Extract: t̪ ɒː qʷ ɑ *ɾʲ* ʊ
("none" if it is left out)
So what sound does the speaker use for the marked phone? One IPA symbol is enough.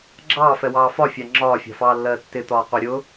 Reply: ɾʲ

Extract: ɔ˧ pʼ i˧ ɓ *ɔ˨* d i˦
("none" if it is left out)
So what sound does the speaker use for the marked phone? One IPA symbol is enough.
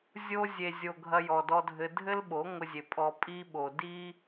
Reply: o˨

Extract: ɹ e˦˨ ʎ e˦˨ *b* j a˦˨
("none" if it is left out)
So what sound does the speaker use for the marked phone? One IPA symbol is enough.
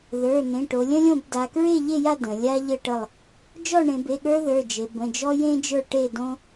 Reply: none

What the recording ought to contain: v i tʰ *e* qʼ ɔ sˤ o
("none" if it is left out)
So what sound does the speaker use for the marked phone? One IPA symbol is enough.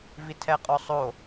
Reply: ɛ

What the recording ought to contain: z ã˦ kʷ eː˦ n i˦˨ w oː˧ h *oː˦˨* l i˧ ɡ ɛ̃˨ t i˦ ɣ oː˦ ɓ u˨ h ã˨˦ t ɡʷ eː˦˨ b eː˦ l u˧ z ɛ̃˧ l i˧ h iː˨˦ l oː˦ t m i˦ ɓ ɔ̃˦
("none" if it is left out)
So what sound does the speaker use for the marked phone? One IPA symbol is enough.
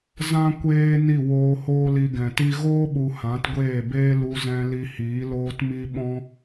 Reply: oː˦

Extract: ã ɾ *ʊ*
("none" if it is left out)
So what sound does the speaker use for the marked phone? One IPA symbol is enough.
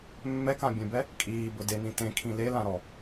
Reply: ɔ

